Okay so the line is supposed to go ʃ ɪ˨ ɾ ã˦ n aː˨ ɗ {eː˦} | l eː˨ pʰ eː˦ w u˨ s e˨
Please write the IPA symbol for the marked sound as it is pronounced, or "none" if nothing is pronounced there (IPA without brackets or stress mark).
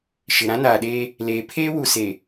eː˦